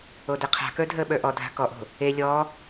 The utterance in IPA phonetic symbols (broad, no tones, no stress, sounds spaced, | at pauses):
o d e qʰ a̤ k ə˞ dʱ əː ɓ ə˞ ʔ ɔ dʱ a̤ k ɔ ʔ o̤ | e lʲ ɔ